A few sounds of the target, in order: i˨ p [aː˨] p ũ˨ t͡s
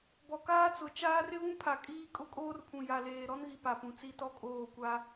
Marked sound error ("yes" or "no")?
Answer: yes